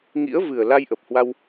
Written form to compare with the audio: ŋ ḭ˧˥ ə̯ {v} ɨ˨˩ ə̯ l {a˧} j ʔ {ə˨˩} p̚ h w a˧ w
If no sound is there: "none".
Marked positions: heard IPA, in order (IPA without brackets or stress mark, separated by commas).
v, a˧, ə˨˩